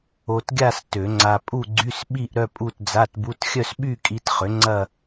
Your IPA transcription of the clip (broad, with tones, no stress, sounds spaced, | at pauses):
o˧ t ɡʲ a˥˧ s t ø˨˩˦ ŋ͡ǀ a˧ pʼ u˥˧ ɡ͡ǀ y˧˥˧ s ɓ i˥˧ ʔ ɾ œ˥˧ pʼ u˥˧ t d͡z a˧˥˧ t b u˧˥˧ t xʲ œ˥˧ s ɓ y˥˧ kʼ i˧ t χ ʏ˩˥ ŋ͡ǀ ɐ˥˧